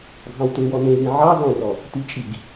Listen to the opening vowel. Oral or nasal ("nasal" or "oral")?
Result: nasal